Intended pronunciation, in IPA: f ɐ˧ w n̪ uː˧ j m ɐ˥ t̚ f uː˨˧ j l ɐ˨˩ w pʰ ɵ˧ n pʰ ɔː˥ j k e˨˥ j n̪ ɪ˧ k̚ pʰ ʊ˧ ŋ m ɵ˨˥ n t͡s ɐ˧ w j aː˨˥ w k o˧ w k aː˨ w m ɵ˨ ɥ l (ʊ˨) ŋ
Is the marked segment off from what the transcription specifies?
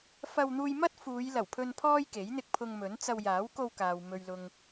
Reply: no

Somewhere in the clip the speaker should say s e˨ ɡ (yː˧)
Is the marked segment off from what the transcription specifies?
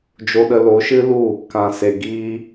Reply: yes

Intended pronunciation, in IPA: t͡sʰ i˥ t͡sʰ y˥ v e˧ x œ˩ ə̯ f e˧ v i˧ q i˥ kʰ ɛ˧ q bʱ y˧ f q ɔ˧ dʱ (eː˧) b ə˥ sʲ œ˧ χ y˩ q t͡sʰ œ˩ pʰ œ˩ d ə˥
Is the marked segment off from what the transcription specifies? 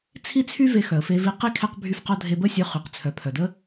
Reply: yes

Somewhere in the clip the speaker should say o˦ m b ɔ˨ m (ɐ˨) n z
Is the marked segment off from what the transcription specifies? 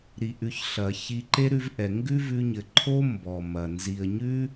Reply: no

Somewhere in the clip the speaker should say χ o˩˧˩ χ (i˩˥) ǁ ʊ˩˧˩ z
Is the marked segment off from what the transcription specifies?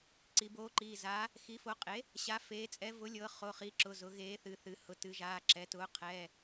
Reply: no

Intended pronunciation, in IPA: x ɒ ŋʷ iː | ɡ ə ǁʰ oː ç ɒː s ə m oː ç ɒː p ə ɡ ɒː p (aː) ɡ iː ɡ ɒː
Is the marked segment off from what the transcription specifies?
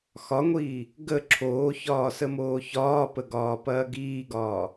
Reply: yes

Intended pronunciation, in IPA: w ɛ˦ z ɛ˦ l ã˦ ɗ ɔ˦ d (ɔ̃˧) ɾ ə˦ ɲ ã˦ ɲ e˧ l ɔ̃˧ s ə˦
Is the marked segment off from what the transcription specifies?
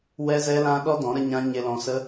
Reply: yes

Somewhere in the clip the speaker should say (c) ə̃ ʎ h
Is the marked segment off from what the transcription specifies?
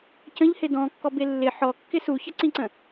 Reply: no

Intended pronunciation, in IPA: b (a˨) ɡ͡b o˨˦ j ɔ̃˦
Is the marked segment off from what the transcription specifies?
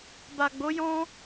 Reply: no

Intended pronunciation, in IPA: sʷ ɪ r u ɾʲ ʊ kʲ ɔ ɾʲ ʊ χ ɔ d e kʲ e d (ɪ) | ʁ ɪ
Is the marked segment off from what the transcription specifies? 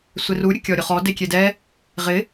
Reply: yes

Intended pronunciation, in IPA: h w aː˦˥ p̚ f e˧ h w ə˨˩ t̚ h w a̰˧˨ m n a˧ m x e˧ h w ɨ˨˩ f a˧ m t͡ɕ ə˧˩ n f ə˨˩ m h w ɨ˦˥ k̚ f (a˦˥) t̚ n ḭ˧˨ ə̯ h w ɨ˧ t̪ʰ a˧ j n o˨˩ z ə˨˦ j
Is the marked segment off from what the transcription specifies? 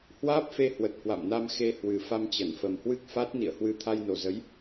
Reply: no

